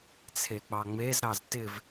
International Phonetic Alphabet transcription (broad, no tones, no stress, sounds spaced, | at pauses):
t͡sʰ e k͡p ɑ ŋ͡m e z ɾ ɑ z t ɪ v